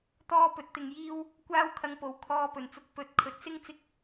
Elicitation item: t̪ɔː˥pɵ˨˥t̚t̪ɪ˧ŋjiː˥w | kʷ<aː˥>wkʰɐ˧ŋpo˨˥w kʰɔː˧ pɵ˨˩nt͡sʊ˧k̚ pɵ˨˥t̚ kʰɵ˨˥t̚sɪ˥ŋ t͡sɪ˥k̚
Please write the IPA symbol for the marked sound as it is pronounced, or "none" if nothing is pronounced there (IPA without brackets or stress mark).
aː˥